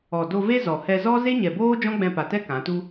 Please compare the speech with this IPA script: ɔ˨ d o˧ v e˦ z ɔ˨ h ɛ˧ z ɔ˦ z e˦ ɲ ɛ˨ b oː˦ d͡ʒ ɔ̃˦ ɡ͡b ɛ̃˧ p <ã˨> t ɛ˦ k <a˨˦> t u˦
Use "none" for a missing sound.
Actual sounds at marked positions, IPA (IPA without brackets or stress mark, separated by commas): a˨, ã˨˦